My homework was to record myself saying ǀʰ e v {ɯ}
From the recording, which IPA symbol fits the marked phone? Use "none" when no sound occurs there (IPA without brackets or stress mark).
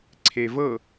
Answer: ɤ